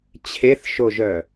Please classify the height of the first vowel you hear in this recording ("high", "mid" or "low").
mid